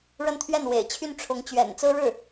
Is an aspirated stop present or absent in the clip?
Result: present